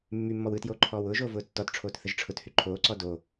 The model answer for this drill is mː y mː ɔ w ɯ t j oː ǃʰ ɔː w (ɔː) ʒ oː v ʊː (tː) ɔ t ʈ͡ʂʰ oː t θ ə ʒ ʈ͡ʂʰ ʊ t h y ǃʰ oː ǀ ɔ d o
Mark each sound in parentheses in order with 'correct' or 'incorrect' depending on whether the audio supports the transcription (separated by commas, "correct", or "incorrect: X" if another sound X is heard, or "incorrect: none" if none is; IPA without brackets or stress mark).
incorrect: ʊː, correct